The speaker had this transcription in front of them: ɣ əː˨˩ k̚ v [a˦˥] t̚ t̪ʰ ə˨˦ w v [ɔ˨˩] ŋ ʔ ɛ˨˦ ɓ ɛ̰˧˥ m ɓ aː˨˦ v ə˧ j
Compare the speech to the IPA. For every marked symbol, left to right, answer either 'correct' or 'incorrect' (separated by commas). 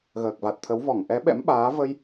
incorrect, incorrect